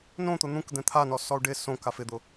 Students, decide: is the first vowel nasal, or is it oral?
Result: nasal